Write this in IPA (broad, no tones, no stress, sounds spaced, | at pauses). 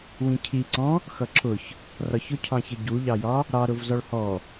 w ĩ cʰ i ǀ ɔ̃ | x ʌ ǁʰ ʊ ç | r ɒ ç ʊ cʰ ɑ̃ ç ə ɟ u ʎ ɑ j ɒ | ɾ ɑ ɾ ʊ v z ɒ ɭ h ɔ